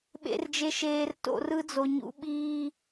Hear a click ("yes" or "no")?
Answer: no